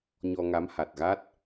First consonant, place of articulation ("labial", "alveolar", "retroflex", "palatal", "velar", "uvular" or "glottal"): palatal